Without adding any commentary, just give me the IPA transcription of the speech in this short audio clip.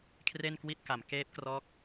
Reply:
kʰ r e˥˩ n k w i˥˩ t̚ k a˩˦ m k eː˦˥ p̚ k r ɔː˦˥ k̚

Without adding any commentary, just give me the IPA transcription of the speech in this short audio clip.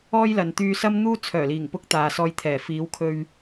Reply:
ɔː˥ j l ɐ˨ n t̪ yː˧ s ɐ˥ m n̪ uː˥ t͡sʰ œː˨˩ l iː˨˩ ŋ p ʊ˧ k̚ t̪ aː˨ s ɔː˧ j t̪ʰ ɛː˨˩ f iː˨˧ w kʰ ɵ˧ ɥ

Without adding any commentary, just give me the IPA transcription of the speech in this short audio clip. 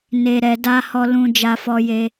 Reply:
n e˨ ɾ ɛ˨ d a˧ h ɔ˧ l ũ˧ d͡ʒ a˧ f ɔ˧ j e˧

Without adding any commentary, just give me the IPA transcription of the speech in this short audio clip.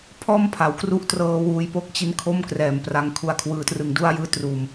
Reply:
pʰ ɔː˥˩ m pʰ a˩˦ w k r u˦˥ ʔ t r ɤː˧ w uː˧ j p o˥˩ k̚ t͡ɕ i˦˥ n kʰ o˥˩ m k r ɛː˨˩ m p r a˧ ŋ kʰ u˧ a̯ kʰ w ɯː˧ t r ɯ˧ ŋ d u˥˩ a̯ j ɯː˦˥ t r uː˧ m

